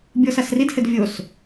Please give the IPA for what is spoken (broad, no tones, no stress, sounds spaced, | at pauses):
bʲ ɔ s a s r i d h ɘ d vʲ o s